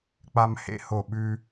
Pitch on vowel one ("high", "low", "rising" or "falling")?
high